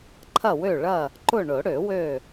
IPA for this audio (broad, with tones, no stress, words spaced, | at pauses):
ǃʰɐ˦˨wø˦˨ɭɐ˦˨ | ǃʊ˦˨ ɳʊ˨˩˦ ɽø˨˩˦wø˦˨